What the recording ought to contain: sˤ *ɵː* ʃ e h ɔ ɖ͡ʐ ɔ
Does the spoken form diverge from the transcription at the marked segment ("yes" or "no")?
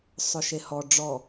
yes